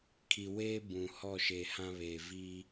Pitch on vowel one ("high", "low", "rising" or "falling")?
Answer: low